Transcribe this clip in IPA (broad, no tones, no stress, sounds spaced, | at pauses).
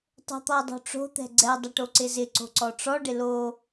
tˤ o̤ t̪ ɔ dˤ o̤ ʈ͡ʂ o̤ t̪ ɛ̤ ɡ͡ǀ ɛ dˤ ɪ ʈ o ǀ ɪ z ɪ ǀ o̤ ǀ ɔ ʈ͡ʂ ɔ ɖ ɪ l o